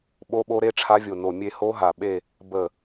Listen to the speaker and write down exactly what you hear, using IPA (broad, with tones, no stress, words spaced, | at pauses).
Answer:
ɓo˦˥ɓo˦˥ɾe˦˥ʈ͡ʂʰa˦˥ vʲo˧˩no˧˩mʲe˥˧ ho˦˥ɦa˧˩ ɓe˥˧ | bə˧˩